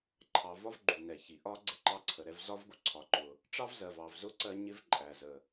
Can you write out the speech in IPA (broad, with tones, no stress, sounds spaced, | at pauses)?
ǃʰ ɑ˩ v ɒ˦ v ɡ͡ǃ u˩ n ɛ˩ ç i˩ ʔ ɒ˦ ɡ͡ǀ ɪ˦ ǃ ɑ˦ ǀʰ ə˩ ɾ ɛ˦ v z ɒ˦ v ɡ u˦ ǀʰ ɒ˩ ǃ ʊ˩ | ʈ͡ʂ ɑ˦ v z ɜ˩ v ɑ˩ v z ʊ˦ ǀ ɜ˦ ɲ ɪ˦ v ǃʼ æ˩ z ə˩